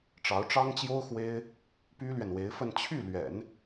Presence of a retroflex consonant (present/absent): present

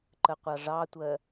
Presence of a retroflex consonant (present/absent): present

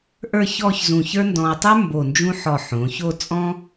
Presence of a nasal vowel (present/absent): present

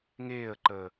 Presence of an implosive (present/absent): absent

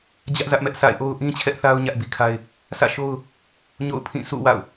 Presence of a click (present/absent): absent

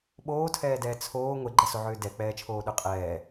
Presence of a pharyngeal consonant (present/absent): present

